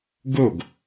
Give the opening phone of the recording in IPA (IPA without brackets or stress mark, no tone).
ɡ